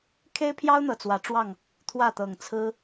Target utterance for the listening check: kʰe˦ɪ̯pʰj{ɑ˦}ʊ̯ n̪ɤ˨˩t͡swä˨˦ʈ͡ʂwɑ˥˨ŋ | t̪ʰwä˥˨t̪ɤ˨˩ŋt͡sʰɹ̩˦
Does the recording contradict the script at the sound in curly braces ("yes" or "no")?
no